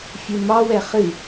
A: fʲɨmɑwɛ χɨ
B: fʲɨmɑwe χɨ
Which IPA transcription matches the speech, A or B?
A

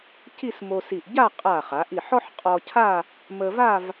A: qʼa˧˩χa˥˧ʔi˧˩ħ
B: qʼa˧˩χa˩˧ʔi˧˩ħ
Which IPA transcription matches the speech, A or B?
B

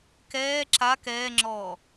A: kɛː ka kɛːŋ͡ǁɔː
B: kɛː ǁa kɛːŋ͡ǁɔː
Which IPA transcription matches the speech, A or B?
B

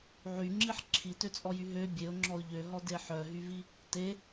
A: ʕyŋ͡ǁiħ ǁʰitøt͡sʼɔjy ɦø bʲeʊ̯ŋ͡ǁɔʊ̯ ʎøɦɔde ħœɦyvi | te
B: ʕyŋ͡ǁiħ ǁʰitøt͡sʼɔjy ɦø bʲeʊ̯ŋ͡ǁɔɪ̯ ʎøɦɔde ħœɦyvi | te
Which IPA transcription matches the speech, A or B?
A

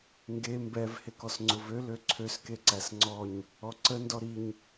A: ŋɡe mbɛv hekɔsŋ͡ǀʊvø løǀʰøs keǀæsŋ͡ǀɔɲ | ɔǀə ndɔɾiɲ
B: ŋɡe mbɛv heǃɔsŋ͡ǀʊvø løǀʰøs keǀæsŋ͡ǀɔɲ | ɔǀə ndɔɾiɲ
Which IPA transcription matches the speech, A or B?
A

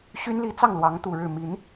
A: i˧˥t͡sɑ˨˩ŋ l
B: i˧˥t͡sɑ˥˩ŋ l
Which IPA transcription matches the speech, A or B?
B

